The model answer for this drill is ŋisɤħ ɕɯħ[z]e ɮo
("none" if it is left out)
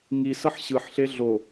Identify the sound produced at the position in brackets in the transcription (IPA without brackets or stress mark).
ɬ